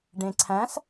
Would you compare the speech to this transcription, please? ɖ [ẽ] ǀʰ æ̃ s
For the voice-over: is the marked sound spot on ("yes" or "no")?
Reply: yes